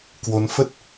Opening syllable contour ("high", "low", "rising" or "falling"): rising